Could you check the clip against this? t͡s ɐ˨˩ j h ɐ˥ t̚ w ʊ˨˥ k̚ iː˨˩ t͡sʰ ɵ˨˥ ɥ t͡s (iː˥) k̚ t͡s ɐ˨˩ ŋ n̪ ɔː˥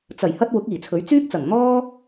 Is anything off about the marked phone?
yes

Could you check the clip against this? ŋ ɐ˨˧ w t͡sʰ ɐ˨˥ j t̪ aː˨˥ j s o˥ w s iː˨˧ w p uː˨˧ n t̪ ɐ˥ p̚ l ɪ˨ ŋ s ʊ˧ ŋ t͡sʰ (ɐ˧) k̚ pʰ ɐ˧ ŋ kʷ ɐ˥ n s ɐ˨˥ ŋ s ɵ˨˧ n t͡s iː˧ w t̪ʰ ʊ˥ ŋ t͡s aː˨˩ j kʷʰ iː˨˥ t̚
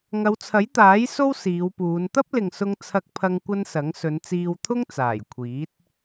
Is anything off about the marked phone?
no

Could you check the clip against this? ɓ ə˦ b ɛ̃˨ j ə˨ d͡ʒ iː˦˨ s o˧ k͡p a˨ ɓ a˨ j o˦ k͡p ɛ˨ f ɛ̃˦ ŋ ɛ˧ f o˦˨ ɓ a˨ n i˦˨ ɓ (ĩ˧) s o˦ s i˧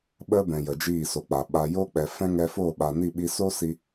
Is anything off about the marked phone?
yes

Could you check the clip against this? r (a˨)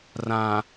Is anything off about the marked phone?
yes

